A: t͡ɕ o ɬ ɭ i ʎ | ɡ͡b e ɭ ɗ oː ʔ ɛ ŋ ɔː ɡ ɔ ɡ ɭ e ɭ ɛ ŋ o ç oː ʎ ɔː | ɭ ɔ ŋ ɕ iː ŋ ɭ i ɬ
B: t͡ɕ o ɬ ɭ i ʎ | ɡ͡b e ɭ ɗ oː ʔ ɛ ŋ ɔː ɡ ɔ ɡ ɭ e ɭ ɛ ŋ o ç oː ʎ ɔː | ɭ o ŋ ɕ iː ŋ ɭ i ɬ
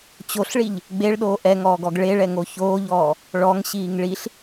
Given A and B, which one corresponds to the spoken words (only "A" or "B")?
A